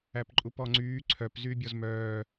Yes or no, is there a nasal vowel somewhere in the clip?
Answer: no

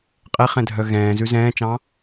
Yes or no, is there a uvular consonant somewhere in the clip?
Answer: yes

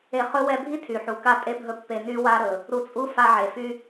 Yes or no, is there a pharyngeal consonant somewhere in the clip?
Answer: yes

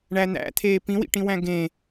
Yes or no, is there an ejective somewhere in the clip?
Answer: no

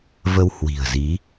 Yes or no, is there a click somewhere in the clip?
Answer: no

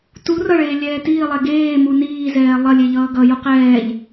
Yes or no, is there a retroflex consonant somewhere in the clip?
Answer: yes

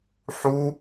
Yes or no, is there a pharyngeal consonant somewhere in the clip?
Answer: yes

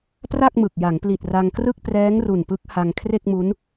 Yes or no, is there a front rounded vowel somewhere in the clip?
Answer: no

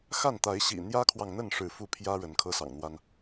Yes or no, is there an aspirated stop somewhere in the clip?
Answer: yes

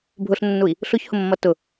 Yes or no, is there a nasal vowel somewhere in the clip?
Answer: no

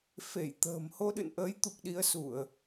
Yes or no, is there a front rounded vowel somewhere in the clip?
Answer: no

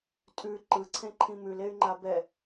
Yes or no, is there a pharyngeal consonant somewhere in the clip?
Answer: no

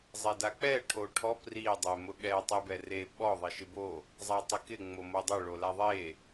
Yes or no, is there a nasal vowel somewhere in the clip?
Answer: no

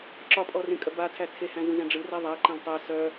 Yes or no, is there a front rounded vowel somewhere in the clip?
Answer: yes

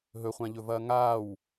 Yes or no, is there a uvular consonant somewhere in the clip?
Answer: yes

